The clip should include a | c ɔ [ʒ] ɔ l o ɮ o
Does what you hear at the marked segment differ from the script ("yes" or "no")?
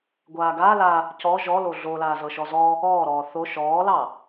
no